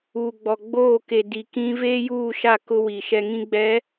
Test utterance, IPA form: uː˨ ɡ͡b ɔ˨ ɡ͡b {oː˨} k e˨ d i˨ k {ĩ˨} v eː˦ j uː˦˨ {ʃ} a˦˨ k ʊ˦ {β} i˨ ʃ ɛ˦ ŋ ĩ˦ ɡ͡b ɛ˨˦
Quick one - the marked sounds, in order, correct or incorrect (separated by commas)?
incorrect, incorrect, correct, incorrect